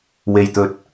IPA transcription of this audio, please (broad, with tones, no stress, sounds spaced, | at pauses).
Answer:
w e˧ j t̪ ɵ˧ t̚